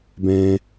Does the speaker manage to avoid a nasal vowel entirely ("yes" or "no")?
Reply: no